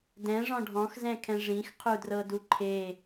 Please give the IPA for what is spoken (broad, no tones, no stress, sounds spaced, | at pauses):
d ɛ̃ ʐ ɔ̃ ɖʱ ɔ̃ x z ɛ̃ kʰ ɛ̃ ʐ ĩ x qʰ u d r ɤ d u ǃʰ e